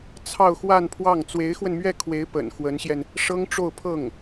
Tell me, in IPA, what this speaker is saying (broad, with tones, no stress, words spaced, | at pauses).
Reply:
t͡sʰɑ˥˧ʊ̯xwa˥˧npʰwɑ˥˩ŋ t͡swe˧˥ɪ̯xwə˧nmɥɛ˥˩kʰwe˧˥ɪ̯ pə̰˨˩n xwə˧˥nɕjɛ˧n | ʂɤ˥ŋʈ͡ʂo˥˧ʊ̯pʰɤ˥˩ŋ